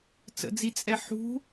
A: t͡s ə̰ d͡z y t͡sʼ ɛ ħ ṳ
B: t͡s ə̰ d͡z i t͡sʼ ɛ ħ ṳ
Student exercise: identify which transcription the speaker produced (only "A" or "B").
B